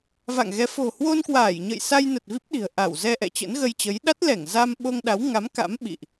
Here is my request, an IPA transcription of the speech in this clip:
v a̰˧˨ ŋ ɣ ɛ˨˦ f o̤˨˩ h w o˧ n k w aː˧˩ j ɲ ə̰˧˨ j s a˧ j n ə˨˩ t̚ v i˦˥ p̚ ɗ i̤˨˩ ə̯ ʔ a˧˩ w z ɛ˧ ʔ ɛ̰˧˨ t͡ɕ ə̰˧˥ n ɣ ə˧ j t͡ɕ ə˨˦ j ɗ a˦˥ t̚ l ɛ˧˩ ŋ z a˧ m ɓ o˧ ŋ ɗ a˨˦ w ŋ a˨˦ m k a̰˧˥ m ɓ ḭ˧˨ ʔ

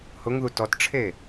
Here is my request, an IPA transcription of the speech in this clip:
h ʊ ŋ ð u t ɔ t ʈ͡ʂʰ e

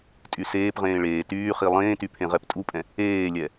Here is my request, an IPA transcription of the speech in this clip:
tʼ y s eː p ʁ ẽː ɭ eː t yː χ i lˠ ẽː t y pʰ ẽ ʁ ɛ p tʼ u pʼ ɛ̃ | eː lʲ ɛ

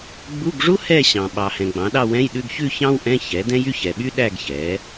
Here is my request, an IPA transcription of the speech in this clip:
ɡ͡b u˧˥˧ ɡ ʐ u˥ h ɛ˥˧ ɕ ɑ̃˨ ɓ ɑ˨ h ɛ̃˨ ɡ͡b ɑ̃˩˥ ɗ ɑ˥˧ w ɛ̃˧˥˧ j ɗ ʉ˧˥˧ ɡ ç ʉ˥˧ ç ɑ̃˥ w ʔ ɛ̃˧˥˧ ç ɛ˩˥ d ɛ̃˥ j y˥˧ ç ɛ˨ ɓ y˥ ɗ æ˥˧ ɡ ç ɛ˩˥

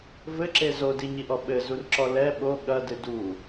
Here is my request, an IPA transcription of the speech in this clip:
v ɘ ǁ e z o d i ɲ i ʔ ɔ ɓ ɘ z u r ǁ ɔ l ɛ ɓ o ɠ ɐ d ɨ d u

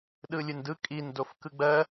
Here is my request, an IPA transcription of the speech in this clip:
ɗ ɯ lʲ ɯ n d ɯ kʼ i n d o f k ɯ ɡ͡b ɜ

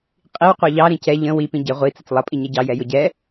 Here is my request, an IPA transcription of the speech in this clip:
qʼ i w qʷ ə˞ ʎ ɑ ɾ ĩ c ɛ ʎ ə̃ w i p ĩ ɟ ɪ ʁʷ i t͡s ə t͡s lˠ ʌ pʼ i ɲ ɛ ɟ ɑ j ɛ j ʊ ɟ ɛ

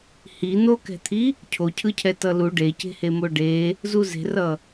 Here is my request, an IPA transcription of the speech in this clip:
h i n̪ o k ɛ̤ t̪ʰ i | cʰ o cʰ ɯ cʰ ɛ t ʌ l u ɖ e c e̤ h e m o ɖ e | z u z e̤ r ʌ

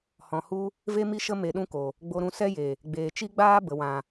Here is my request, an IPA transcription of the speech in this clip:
h ɔ̃˨ h u˧ | v e˦ m i˦ ʃ ə˦ m e˧ ɗ ũ˦ k o˨ | ɡ͡b o˧ ɾ ũ˧ s ɛ˦ j e˨ | ɡ͡b eː˨ t͡ʃ i˦ ɡ͡b aː˦ b ə˨ w ã˨

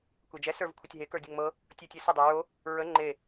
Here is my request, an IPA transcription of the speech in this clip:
kʷ e d͡ʒ ɛ s ə˞ v kʷʰ ə tʲ ɦ e k ə˞ dʲ ə ŋ m ɤ | tʲ ə˞ tʲ ə˞ s ə dˤ o ɹ o | ɹ ə ŋ͡ǃ e

